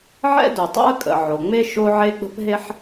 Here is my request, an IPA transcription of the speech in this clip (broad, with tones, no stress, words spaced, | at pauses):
ʕɛ̰˥do˩ tˤo̰˥ə̯kʼə̰˩ʕo˩ ŋ͡me˥ ʃo˥ʕe˥ ɡ͡bə̤˥pɦe˥ħ